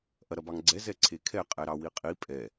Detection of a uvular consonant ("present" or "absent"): present